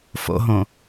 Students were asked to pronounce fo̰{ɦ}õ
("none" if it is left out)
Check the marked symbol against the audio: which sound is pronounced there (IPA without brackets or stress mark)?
ɦ